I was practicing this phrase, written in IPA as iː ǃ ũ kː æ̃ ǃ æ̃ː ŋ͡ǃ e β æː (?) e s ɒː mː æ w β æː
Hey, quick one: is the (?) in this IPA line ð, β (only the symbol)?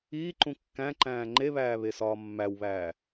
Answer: β